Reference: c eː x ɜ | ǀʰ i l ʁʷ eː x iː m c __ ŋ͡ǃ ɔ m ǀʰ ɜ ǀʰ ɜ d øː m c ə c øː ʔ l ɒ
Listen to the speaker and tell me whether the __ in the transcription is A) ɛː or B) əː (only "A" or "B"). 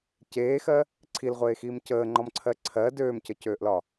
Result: B